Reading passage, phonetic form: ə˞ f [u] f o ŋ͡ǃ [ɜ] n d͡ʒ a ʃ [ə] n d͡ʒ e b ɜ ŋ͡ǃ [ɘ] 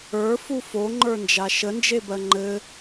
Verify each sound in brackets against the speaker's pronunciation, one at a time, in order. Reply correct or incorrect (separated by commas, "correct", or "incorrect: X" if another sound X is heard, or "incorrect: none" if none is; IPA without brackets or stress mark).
correct, incorrect: ə˞, correct, correct